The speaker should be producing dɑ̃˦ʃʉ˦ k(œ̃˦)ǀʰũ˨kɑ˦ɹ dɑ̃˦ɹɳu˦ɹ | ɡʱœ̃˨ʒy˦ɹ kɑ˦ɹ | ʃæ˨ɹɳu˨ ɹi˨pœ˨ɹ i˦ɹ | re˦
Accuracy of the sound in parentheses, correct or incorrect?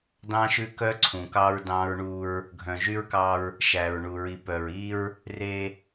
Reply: incorrect